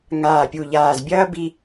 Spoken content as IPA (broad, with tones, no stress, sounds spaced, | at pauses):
ŋ aː˧˩ pʲ u˧˩ ʎ aː˧˩ z bʲ ɐː˥ b i˥